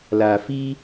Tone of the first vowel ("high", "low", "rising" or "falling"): low